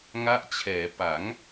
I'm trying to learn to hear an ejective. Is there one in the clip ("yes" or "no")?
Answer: no